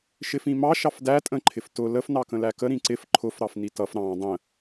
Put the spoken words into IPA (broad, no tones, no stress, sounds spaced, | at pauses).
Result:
ʃ ɪ f ĩ m ɑ ʃ ɑ f d æ tʼ ə̃ ǃʰ ɪ f t ʊ l ə f n ɑ k ə̃ l æ k ə ɾ ĩ ǀ ɪ f ǃʰ ʊ f ɾ ɑ f n i t ʌ f ɾ ɑ̃ dˤ ə̃